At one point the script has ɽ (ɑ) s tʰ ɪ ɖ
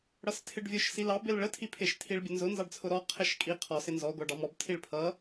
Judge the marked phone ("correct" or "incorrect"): incorrect